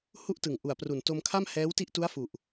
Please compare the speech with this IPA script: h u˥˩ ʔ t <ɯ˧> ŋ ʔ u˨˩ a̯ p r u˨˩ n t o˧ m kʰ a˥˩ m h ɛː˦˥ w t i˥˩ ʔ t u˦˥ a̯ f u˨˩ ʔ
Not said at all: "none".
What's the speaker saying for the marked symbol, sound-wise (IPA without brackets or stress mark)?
ɯ˨˩